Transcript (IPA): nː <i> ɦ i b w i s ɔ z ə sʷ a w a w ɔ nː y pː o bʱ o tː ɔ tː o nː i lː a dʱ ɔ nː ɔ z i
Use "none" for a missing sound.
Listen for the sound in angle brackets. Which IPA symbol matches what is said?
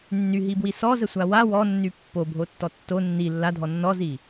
y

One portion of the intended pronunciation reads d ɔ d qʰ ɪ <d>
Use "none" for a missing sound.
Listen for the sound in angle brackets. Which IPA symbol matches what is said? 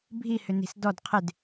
d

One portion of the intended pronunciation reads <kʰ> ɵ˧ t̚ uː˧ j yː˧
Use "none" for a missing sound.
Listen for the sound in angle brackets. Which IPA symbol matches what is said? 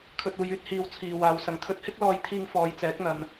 kʰ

